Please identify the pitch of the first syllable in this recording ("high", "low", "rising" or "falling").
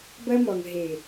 high